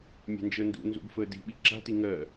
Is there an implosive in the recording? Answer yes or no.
yes